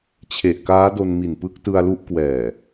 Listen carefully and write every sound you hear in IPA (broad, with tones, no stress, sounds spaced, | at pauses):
t͡ɕʰ e˨˩ ʔ k aː˦˥ d o˧ n m i˨˩ n p ɯ˦˥ k̚ t ɯ˧ a̯ l u˦˥ ʔ k w ɛː˨˩